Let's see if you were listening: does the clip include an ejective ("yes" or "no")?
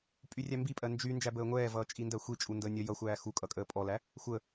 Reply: yes